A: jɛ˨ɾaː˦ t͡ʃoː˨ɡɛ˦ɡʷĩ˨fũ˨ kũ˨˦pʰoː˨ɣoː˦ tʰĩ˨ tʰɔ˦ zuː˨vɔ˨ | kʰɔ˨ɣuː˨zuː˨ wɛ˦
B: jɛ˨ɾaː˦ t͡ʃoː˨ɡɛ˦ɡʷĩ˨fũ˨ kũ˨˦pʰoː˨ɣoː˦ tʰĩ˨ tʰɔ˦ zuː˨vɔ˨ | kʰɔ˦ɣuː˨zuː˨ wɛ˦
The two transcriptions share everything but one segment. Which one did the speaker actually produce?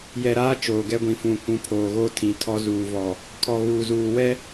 A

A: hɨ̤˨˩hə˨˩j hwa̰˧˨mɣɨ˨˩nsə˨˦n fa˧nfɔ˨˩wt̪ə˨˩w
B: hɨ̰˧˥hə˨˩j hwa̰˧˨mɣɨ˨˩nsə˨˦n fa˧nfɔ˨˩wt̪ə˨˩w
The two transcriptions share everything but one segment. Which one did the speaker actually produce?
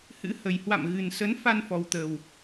B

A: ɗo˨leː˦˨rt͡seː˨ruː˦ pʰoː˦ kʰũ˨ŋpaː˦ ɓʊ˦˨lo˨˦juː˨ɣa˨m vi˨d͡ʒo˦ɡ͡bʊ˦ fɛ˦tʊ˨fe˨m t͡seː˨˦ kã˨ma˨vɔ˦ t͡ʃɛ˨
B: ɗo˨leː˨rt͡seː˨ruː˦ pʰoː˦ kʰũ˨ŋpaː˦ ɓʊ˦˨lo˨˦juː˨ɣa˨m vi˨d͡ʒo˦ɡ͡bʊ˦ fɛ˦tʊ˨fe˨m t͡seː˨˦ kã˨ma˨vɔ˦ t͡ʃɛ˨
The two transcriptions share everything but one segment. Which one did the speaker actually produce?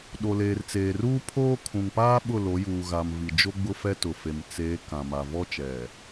B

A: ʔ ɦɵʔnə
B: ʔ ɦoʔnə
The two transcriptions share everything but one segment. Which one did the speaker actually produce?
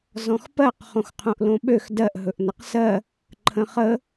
A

